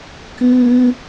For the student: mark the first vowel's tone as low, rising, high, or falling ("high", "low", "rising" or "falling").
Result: low